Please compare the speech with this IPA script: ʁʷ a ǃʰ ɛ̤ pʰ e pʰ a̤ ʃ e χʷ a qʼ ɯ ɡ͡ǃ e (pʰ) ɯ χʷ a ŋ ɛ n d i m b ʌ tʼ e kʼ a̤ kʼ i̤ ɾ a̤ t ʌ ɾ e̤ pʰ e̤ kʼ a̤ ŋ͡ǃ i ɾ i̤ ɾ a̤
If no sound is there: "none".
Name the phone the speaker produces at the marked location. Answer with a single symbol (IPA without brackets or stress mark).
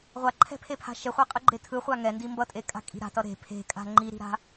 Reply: tʰ